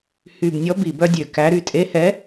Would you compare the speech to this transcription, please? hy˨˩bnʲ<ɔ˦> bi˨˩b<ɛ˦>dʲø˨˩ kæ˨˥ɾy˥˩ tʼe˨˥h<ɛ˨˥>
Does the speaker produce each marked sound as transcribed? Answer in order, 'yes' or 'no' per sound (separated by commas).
no, no, yes